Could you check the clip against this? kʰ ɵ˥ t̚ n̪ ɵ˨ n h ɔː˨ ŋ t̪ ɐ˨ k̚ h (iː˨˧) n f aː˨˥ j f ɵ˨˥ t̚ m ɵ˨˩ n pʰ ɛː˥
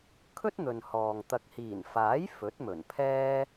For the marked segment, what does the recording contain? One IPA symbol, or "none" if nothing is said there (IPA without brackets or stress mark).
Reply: iː˨˩